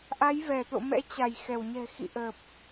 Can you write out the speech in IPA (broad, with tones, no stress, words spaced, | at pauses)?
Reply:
ʔa˨˦jvɛ˧˩ t̪o̰˧˨mɛ̰˧˥ t͡ɕa˧˩j xɛ˧˩wɲɛ̤˨˩xḭ˧˨ ʔəː˨˩p̚